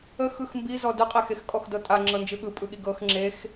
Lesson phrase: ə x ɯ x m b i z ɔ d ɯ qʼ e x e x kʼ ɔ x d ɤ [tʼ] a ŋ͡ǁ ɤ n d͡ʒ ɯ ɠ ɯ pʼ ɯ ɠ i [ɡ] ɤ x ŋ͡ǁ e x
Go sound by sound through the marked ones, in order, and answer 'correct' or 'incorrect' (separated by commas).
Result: correct, correct